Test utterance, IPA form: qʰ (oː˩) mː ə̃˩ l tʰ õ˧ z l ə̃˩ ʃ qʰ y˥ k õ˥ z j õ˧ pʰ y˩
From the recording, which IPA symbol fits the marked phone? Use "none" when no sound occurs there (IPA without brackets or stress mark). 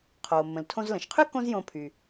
oː˩